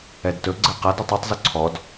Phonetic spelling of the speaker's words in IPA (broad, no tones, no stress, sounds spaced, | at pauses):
ɛ d t ɵ ɡ͡ǀ ɘ q a d u tˤ ɛ tˤ z ɵ ǀʰ ɔ d